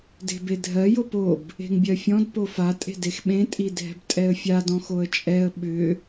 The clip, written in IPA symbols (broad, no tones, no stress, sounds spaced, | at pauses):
d e̤ b e dʱ ɜ j o p o b | e̤ ŋ bʲ ɜ fʲ ɔ̃ d p o f a tʼ e̤ d e x ɓ ẽ tʼ i dʱ ɛ̤ b tʼ ɛ ə̯ fʲ a d ɔ̃ x o ə̯ t͡ʃʼ ɛ ə̯ ɓ ʏ